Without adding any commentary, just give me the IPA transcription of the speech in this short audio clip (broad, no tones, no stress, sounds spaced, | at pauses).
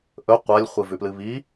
ʔ ɵ qʷ a lʲ χʷ ɨ v ʉ p l ɨ β i